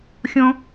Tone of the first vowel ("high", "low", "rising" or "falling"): high